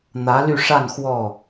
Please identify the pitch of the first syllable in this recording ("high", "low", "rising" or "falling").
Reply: rising